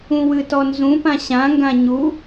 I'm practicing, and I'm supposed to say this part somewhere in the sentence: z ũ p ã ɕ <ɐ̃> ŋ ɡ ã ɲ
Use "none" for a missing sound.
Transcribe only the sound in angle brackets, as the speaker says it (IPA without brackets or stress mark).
ã